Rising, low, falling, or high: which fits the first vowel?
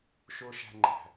high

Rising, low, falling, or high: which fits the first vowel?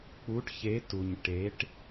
rising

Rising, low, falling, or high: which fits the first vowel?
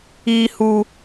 high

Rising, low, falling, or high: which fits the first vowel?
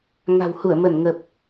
low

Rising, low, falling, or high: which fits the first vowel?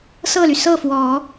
falling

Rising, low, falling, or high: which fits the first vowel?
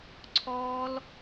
high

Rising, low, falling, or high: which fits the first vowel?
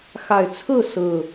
low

